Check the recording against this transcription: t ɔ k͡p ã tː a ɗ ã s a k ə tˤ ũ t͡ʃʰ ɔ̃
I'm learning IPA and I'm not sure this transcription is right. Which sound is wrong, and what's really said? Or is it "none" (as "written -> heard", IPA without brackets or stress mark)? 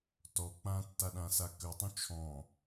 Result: none